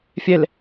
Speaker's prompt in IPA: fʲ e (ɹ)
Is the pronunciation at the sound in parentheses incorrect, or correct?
incorrect